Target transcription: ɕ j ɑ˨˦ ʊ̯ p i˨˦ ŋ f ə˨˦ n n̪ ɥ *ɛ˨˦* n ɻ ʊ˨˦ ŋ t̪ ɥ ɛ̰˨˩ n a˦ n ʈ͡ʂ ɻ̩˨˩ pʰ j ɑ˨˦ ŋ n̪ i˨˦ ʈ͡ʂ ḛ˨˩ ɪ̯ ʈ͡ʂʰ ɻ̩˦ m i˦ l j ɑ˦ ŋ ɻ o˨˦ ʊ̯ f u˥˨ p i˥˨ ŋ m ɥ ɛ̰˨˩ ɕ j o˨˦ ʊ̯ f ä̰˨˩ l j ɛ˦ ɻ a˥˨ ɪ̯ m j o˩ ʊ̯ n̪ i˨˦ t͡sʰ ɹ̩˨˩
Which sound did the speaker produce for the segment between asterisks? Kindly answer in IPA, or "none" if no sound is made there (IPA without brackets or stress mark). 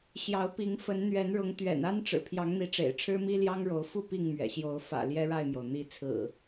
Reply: ɛ˨˦